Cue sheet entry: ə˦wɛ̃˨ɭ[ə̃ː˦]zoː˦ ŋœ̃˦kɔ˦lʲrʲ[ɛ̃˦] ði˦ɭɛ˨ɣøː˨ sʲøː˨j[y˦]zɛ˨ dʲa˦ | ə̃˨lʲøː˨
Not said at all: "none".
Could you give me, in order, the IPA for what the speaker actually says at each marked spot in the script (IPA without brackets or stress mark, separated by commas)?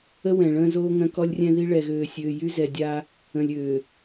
ə̃ː˦, ɛ̃˦, y˦